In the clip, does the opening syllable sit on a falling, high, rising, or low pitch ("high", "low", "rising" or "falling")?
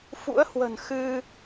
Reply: rising